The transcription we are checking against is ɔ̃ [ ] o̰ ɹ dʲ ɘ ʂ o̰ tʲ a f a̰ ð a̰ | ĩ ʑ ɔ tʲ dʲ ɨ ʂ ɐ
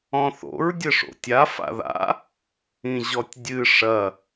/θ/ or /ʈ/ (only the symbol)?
θ